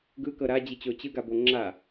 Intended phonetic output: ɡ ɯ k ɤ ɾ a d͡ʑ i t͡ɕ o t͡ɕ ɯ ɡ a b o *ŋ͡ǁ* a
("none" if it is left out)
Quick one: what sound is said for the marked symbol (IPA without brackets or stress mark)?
ŋ͡ǁ